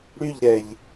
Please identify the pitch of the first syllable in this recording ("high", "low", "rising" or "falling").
falling